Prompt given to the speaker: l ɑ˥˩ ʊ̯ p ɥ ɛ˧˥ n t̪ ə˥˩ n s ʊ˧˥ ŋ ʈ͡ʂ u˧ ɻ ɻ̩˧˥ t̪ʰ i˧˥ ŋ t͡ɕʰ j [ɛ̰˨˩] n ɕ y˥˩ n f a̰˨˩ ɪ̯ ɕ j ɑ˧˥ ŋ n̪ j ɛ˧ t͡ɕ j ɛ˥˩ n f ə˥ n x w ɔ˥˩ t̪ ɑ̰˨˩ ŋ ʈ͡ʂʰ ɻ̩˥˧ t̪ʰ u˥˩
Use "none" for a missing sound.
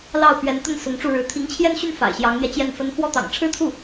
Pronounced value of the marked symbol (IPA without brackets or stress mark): ɛ˥˧